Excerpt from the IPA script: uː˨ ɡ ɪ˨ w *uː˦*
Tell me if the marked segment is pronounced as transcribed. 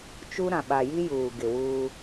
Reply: yes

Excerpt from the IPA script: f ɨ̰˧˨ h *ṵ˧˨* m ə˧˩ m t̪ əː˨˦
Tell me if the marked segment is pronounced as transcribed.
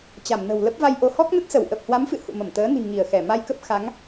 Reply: yes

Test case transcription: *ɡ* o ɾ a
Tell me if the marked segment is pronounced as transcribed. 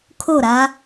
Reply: no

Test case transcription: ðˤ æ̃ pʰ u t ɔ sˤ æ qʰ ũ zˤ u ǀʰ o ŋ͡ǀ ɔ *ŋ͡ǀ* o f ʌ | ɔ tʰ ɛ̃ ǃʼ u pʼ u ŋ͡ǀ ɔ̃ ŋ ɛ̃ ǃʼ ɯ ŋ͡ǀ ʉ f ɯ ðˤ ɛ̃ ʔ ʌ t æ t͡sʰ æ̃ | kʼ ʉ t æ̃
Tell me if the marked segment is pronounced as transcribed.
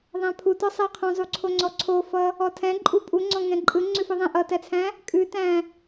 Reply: no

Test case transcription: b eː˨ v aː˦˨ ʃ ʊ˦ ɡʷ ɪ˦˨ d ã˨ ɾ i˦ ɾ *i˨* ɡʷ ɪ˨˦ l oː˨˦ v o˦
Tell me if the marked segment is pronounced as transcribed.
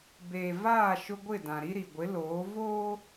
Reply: yes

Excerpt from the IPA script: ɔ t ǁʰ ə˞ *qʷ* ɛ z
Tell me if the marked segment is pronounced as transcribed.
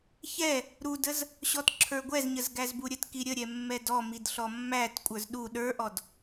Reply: no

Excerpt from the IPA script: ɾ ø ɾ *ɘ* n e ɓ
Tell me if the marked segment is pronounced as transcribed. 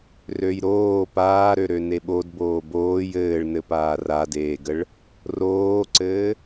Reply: no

